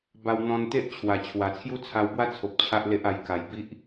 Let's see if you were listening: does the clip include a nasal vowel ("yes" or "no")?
yes